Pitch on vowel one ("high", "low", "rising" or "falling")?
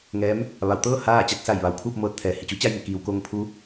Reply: rising